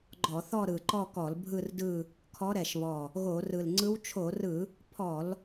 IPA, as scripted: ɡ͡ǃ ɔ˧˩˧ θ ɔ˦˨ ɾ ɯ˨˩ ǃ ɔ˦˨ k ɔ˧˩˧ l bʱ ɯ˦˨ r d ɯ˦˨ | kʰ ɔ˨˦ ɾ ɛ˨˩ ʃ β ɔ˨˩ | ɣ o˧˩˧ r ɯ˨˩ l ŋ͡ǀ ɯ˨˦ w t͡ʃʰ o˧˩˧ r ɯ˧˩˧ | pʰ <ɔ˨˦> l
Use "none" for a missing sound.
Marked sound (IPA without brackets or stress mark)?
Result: ɔ˧˩˧